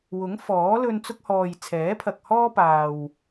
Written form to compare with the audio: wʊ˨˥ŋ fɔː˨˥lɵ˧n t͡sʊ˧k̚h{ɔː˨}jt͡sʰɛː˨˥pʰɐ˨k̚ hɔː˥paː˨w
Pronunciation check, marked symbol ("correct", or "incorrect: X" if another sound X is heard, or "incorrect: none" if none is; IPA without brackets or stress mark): correct